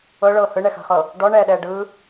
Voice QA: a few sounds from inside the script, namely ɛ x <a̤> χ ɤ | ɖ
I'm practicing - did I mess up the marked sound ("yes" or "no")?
no